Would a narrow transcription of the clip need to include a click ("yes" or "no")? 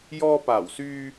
no